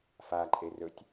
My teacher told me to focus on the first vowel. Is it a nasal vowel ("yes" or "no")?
no